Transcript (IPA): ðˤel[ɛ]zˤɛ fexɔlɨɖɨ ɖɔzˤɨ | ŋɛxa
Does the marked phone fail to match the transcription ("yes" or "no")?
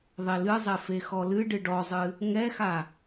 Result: yes